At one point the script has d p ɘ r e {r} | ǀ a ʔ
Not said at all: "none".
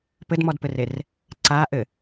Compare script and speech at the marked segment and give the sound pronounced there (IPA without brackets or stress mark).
r